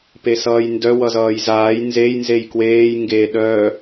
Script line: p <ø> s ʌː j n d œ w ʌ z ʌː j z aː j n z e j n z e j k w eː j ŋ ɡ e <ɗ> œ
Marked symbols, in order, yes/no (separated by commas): no, yes